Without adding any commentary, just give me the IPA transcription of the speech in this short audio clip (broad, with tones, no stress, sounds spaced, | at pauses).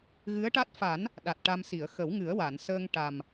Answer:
ɣ ɨ˧˥ ə̯ ʈ a˦˥ t̚ f a˨˩˦ n | ɗ a˨˩ t̚ ʈ a˧ m s i˨˩˨ ə̯ x ə˨˩˦ w ŋ ɨ˨˩˦ ə̯ w a˨˩˨ n s əː˧ ŋ ʈ a˨˩ m